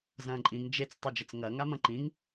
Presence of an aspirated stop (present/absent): absent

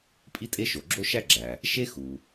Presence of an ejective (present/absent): present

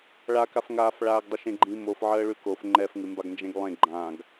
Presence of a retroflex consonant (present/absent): present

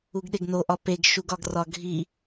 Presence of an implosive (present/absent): present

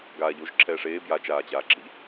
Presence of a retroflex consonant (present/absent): present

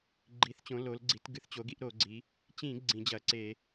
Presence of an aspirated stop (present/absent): absent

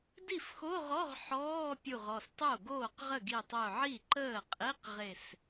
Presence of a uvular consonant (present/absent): present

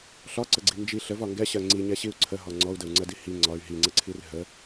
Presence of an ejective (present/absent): absent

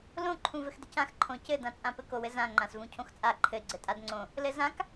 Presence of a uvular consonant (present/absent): absent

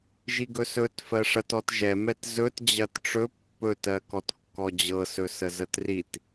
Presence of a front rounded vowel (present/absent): absent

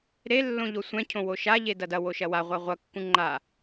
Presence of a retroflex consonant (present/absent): absent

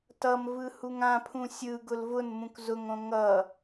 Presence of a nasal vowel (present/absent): present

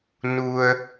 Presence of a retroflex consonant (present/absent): absent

